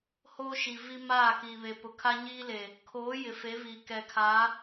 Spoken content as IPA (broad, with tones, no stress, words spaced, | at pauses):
hoː˦ʃi˨ vi˦ maː˦˨kiː˨βe˨pʊ˨ kʰa˦ɲiː˦le˨ | kʰoː˨˦ jɪ˨fe˨˦viː˨ kɛ˨kʰa˨˦